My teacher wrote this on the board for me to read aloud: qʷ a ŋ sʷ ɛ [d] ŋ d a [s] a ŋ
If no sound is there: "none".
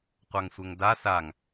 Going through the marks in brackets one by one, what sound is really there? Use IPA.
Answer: none, s

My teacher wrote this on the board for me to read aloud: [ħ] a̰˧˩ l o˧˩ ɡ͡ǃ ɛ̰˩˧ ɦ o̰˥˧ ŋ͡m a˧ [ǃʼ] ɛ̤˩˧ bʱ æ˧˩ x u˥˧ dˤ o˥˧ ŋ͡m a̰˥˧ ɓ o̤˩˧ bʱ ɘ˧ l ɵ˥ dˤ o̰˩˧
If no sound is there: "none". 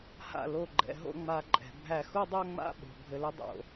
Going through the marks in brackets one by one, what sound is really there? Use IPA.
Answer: h, ǃʼ

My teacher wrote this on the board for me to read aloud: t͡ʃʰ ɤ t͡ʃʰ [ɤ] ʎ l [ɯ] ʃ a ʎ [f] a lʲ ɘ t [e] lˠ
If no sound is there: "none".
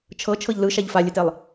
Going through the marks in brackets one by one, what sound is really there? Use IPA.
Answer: ɤ, ɯ, f, e

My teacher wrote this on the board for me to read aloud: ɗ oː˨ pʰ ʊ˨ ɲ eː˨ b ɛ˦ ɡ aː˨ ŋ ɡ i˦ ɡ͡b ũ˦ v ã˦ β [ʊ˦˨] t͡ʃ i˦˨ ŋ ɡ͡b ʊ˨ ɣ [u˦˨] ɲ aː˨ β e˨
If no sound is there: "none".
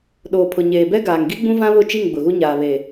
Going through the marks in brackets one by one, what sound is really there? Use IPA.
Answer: ʊ˦˨, u˦

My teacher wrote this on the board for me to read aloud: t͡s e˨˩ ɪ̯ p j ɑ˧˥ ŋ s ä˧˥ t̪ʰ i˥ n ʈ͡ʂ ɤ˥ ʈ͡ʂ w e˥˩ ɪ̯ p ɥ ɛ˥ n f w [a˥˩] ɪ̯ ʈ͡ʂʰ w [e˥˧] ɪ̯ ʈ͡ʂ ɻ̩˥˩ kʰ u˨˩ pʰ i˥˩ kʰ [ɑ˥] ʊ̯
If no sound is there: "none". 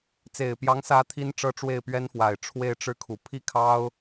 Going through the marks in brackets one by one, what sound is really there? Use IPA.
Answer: a˨˩, e˥˧, ɑ˥

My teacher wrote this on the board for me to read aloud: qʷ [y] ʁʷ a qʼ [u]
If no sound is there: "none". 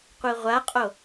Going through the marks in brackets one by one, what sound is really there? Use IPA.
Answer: i, o

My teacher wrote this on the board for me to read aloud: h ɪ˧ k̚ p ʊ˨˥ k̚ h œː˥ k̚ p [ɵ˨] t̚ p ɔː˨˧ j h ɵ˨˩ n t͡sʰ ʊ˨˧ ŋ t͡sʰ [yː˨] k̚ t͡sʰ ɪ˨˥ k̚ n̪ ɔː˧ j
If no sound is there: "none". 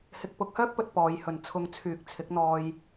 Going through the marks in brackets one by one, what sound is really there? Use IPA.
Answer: ɵ˨, yː˨

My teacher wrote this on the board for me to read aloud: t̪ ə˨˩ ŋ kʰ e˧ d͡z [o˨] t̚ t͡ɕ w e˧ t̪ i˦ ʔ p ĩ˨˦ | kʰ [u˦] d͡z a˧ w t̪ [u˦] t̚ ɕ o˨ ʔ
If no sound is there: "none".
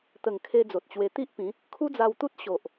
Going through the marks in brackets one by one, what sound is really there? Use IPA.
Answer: o˨, u˦, u˦

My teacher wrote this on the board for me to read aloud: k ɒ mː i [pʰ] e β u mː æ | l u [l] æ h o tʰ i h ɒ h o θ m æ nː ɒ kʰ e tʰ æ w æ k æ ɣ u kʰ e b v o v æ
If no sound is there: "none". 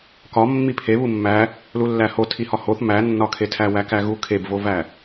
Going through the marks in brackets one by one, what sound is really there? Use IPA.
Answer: pʰ, lː

